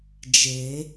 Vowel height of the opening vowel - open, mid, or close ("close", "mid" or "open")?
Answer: mid